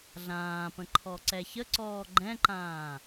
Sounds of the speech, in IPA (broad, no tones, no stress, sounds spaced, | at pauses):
ɮ ãː p ə̃ ǃʰ ɔ ǀ ɛ ç ə ǀ ɔː ɡ͡ǃ ɛ̃ ǃ ãː